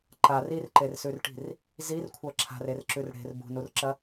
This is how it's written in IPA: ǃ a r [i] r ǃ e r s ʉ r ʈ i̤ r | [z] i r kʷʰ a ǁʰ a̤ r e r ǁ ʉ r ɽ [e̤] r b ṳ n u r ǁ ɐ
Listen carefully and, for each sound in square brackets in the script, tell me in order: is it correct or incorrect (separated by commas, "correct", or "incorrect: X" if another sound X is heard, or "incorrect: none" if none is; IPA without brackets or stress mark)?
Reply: correct, correct, correct